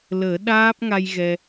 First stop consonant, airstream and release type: implosive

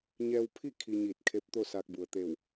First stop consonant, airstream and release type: aspirated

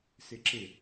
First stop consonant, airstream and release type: click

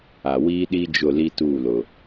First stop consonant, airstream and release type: implosive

